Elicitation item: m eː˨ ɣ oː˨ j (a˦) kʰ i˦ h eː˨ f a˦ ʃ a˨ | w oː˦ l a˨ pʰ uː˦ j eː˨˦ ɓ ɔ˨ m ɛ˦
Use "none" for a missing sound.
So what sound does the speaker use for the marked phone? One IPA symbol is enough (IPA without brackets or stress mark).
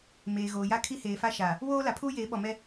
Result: a˦